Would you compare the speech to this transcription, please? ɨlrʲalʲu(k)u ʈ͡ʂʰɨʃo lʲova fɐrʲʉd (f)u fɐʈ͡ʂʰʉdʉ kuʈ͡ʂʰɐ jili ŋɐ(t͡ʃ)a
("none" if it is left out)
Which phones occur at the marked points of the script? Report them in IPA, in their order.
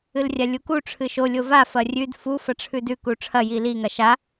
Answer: k, f, ʃ

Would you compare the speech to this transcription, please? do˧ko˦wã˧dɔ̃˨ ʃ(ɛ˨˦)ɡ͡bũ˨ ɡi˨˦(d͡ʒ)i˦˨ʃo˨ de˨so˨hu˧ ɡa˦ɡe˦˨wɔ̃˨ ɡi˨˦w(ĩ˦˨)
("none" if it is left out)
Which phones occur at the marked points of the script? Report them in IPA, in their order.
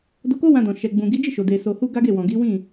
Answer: ɛ˨, d͡ʒ, ĩ˦˨

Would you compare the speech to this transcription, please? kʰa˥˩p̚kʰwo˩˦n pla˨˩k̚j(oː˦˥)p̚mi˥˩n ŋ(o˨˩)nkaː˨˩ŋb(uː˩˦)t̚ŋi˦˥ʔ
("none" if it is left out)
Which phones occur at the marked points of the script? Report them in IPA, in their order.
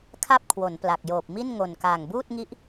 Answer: oː˨˩, o˨˩, uː˥˩

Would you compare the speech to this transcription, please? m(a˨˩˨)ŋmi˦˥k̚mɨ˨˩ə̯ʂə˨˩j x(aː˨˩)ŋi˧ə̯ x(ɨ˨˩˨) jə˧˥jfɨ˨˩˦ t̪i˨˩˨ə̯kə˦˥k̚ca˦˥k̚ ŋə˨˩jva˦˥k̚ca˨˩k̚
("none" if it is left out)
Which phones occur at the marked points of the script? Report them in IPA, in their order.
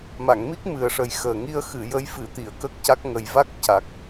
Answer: a˨˩˨, əː˨˩, ɨ˨˩˨

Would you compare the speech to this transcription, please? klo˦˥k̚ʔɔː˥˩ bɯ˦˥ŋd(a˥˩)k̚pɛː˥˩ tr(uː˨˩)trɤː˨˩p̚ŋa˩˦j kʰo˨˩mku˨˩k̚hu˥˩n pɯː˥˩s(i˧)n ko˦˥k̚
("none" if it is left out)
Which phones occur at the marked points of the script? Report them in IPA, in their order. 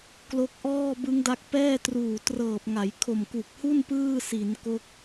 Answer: a˦˥, uː˨˩, i˩˦

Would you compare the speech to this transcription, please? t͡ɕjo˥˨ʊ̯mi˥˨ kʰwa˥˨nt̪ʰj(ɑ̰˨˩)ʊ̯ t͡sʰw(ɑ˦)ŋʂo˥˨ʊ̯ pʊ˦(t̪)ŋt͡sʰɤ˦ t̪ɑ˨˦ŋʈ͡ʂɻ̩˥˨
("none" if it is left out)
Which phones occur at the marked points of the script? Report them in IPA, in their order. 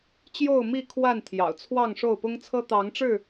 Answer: ɑ̰˨˩, ɑ˥˨, none

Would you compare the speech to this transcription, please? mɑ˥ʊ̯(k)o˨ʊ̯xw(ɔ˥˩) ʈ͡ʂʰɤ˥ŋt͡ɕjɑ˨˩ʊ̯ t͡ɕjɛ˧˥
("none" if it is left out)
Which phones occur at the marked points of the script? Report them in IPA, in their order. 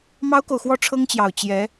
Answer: k, ɔ˥˩

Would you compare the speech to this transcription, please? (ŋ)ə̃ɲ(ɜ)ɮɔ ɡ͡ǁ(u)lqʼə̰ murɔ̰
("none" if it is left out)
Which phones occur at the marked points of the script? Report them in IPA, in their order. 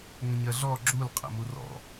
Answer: ŋ, ɜ, u

